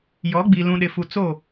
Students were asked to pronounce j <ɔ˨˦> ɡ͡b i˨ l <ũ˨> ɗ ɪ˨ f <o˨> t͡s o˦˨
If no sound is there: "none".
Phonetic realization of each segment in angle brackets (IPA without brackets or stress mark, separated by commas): ɔ˨˦, ũ˨, u˨